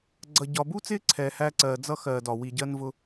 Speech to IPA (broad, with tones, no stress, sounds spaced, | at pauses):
ɡ͡ǀ ʌ˨ ɟ ɒ˨ b u˥ t͡s ɪː˥ ǀʰ ɛː˨ h æː˦ ǀ ɜː˨ d͡z ʌ˥ x ɜː˨ d ɒ˩ w i˨ ɟ ɜ˥ n v ʊ˦